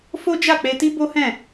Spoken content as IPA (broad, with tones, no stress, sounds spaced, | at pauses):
f o˦ d͡ʒ a˦˨ k͡p e˧ t i˦ b o˦ h ɛ̃˦˨